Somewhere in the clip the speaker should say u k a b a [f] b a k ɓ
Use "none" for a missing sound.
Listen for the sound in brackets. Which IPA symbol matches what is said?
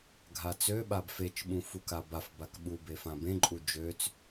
f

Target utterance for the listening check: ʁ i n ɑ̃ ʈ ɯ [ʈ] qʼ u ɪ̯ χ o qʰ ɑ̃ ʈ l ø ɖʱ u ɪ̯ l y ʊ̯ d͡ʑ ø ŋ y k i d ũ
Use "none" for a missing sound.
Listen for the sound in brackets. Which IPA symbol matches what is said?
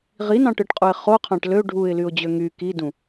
ʈ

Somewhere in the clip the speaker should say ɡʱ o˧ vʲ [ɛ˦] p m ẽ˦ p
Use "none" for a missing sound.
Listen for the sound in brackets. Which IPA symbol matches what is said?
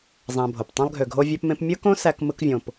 ø˦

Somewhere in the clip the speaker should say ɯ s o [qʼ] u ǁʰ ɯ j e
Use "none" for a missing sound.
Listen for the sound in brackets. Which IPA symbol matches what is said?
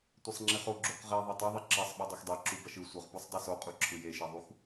qʼ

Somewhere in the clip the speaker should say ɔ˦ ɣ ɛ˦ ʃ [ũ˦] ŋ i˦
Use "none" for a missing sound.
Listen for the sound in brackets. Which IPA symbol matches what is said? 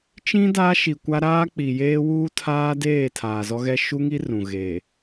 u˦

